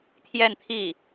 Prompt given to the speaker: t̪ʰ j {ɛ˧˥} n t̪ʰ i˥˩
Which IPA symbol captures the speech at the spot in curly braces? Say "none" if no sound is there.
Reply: ɛ˥˧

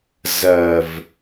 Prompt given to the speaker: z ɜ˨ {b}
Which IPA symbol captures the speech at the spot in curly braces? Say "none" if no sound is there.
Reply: v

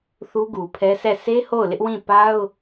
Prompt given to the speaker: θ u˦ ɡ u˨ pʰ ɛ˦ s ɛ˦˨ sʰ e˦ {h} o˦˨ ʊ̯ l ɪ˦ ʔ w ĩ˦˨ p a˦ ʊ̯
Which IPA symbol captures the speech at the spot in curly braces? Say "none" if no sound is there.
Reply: h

